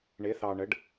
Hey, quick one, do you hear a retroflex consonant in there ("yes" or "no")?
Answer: yes